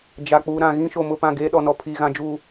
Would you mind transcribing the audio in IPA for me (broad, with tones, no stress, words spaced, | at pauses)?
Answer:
d͡ʒa˨ k͡puː˨ɾã˨ ɣĩ˦ʃo˨ mʊ˦˨pã˦˨ ɡeː˦ɗɔ˨nɔ˨ pʰiː˨ɣã˨d͡ʒuː˨